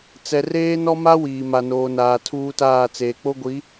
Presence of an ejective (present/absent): absent